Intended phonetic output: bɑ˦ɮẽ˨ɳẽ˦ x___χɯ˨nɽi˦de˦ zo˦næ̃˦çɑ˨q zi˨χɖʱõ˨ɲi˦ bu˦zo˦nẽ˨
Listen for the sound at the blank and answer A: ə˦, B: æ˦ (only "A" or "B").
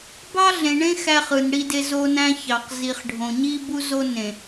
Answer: B